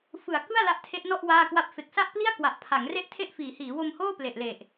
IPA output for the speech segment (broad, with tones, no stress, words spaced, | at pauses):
fɯ˨˩a̯kɯ˥˩a̯ la˦˥ʔtʰe˦˥ʔnɔ˥˩ʔ waː˥˩kwa˥˩p̚ fe˨˩k̚sa˥˩ʔpli˥˩a̯kwa˨˩ʔ pʰa˩˦ŋre˥˩ʔtʰe˥˩ʔ fiː˩˦hiː˩˦wo˧mhoː˥˩ ple˨˩ʔle˨˩ʔ